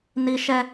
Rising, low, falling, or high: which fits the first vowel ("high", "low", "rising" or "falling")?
high